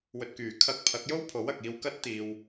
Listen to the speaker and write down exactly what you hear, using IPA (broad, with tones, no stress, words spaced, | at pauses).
wɵ˨t̚kyː˨˩ kʰɐ˧k̚pʰɐ˨˥k̚jo˥wpʰo˨˥w ɐ˨k̚iː˧wkɐ˥t̚ t̪iː˨w